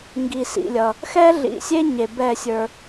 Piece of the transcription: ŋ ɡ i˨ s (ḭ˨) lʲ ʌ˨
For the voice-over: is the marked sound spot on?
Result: yes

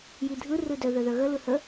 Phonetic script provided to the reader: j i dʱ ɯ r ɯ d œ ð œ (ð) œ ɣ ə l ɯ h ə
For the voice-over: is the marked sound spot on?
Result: yes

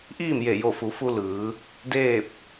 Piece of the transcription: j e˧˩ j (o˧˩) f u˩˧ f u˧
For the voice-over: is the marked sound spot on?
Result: yes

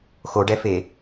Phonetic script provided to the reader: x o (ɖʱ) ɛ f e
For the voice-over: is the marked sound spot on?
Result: no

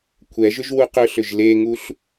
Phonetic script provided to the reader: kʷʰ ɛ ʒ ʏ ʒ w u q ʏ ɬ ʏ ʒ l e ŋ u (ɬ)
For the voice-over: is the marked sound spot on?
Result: yes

